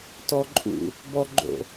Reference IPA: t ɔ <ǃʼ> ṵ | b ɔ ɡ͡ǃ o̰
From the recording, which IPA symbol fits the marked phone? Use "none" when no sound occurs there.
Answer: ǃʼ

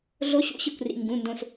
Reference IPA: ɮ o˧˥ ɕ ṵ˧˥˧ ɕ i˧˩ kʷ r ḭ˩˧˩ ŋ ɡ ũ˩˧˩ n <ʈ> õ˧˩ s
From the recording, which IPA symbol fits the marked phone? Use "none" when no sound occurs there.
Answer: d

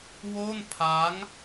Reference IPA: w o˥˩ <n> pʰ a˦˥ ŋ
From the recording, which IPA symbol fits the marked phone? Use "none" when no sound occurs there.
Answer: n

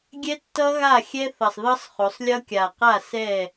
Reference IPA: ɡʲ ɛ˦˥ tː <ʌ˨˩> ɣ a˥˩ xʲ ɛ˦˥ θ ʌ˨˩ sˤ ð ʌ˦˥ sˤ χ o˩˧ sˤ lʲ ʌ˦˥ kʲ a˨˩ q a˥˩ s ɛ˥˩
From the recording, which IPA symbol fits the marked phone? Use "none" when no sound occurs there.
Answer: ʌ˦˥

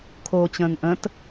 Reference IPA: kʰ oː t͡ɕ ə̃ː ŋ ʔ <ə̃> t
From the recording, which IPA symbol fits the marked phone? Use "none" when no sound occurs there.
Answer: ə̃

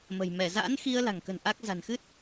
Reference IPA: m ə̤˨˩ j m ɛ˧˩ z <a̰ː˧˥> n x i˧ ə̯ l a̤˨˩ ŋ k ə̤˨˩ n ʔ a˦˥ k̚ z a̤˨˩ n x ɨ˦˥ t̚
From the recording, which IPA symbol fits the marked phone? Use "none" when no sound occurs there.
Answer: a̰ː˧˥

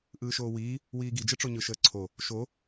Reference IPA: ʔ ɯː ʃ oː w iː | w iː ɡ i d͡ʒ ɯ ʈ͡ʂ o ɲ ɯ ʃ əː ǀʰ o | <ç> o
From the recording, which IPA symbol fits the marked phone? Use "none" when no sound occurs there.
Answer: ʃ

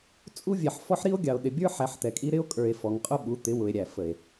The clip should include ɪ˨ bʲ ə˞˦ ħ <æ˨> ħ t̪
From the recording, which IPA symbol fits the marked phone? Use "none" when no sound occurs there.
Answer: æ˨˦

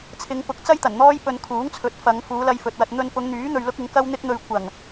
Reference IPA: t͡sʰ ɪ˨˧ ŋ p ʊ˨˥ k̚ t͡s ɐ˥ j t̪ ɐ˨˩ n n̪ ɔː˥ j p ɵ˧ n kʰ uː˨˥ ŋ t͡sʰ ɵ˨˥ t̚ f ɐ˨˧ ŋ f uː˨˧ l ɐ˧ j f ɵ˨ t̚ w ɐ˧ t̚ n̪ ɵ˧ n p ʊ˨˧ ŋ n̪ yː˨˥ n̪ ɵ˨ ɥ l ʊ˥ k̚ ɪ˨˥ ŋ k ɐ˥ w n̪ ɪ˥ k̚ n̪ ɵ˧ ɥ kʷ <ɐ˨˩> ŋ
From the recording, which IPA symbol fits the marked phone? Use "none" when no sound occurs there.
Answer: ɐ˨˩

